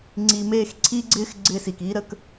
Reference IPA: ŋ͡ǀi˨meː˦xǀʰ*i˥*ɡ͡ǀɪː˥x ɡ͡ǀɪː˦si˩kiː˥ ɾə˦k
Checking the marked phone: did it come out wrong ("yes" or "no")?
no